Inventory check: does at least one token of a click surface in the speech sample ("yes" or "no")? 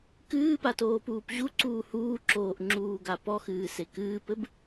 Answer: yes